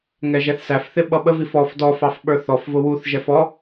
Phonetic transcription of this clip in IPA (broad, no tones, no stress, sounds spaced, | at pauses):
ŋ ɛ ʒ ɛ θ s æ f θ ɪ ɓ ʌ ɓ ə v i f ɔ f d ɔ f ɑ f ɓ ə˞ θ ɔ f v ʊ w u θ ʒ ɛ f ɔ